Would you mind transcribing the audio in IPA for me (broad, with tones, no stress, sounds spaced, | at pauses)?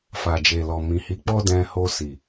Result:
f a˨ d͡ʒ e˨ l ɔ˨ m ĩ˨ h i˨˦ k͡p ɔ˦ d ɛ̃˧ h o˧ s i˨